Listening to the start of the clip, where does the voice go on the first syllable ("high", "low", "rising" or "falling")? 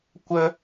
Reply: high